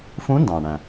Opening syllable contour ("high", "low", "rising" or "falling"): rising